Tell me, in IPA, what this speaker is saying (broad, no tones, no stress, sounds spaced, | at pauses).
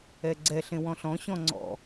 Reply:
ɛ ɡ͡ǀ ɛ ɬ ẽ w ɔ̃ ɬ ɔ̃ ɕ ɔ̃ ŋ͡ǀ ɔ̰